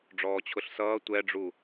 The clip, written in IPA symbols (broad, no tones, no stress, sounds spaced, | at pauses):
ɖ͡ʐ ɔː t͡ɕʰ ʊ ɬ s ʌː tʷ ɛ ɖ͡ʐ u